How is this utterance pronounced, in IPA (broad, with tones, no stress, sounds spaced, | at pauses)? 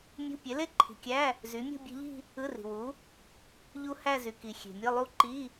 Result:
mʲ ṳ˧˥˧ pʲ e˨˥ l e˥˧ ǃʰ i̤˨ kʲ æ˧˥˧ | z y˨˥ mʲ ṳ˥˧ bʲ e̤˦˥ ʎ i̤˥˧ | ɯ˧˥˧ r i̤˨ w u˨˥ | ʎ u˦˥ h æ˥˧ z y˨ k i˨ xʲ e̤˨ mʲ ɯ˧˥˧ lˠ u˦˥ ǃ i˧˥˧